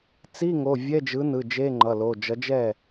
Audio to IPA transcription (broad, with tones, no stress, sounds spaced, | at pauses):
t͡s i˧˥˧ ŋ o˩˧˩ vʲ ɛ˧˥˧ d͡ʒ ɯ˨˥ n ɯ˩˧˩ d͡ʒ e˧˥˧ ŋ͡ǃ ʌ˩˧˩ l o˩˧˩ d͡ʒ ʌ˨˥ d͡ʒ ɛ˥˩